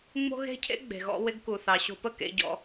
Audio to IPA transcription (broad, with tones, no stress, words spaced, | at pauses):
ŋ͡mo̤˦ɣe̤˦cʰḛ˦ ɡ͡be̤˨ɣɔ̰˧wɪ˧ɡku˨ θɑ˨ɕo̤˧pə˦ kḛ˧ɟɔ̰˧